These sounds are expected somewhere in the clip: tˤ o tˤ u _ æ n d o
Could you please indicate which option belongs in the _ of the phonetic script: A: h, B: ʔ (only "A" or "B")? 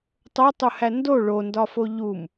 A